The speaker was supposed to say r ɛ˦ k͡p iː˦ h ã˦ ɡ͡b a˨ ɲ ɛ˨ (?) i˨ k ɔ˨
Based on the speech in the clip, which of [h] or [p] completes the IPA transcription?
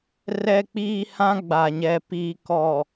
p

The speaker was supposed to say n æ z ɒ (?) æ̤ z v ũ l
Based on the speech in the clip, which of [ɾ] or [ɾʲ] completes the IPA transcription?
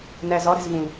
ɾ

